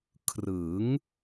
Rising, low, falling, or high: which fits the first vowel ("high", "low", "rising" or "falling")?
rising